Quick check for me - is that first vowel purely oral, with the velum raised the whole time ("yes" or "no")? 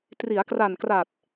yes